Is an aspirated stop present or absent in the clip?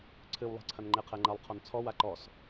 present